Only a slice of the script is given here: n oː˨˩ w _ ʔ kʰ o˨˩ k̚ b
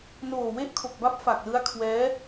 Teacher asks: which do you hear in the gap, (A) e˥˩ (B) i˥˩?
A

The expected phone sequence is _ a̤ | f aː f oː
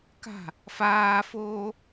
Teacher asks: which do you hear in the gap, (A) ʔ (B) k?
B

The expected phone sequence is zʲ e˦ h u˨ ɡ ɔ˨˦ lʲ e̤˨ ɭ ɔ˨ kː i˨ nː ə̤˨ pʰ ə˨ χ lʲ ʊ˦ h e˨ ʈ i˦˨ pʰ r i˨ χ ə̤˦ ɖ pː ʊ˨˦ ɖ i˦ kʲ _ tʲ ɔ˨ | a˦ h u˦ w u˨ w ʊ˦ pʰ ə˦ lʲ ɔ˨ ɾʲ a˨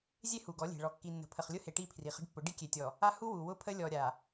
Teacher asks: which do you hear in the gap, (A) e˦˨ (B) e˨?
B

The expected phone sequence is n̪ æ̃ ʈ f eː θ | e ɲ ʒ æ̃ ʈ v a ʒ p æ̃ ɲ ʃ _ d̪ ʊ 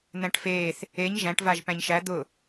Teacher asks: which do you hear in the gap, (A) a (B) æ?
B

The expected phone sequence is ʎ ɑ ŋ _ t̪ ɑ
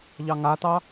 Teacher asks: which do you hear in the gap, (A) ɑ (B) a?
B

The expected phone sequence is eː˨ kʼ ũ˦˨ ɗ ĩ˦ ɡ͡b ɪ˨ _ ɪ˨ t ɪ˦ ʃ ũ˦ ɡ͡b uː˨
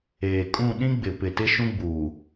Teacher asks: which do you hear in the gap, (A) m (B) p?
B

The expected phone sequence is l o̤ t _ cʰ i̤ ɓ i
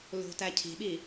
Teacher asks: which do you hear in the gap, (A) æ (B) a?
A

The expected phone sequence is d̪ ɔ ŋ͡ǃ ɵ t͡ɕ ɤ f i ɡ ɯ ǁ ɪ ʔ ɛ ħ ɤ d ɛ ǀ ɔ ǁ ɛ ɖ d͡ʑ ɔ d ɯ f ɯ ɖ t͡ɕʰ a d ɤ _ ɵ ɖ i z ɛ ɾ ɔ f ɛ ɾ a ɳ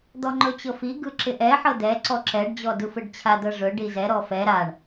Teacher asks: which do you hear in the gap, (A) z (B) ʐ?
B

